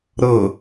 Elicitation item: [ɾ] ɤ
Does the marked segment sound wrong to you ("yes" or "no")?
no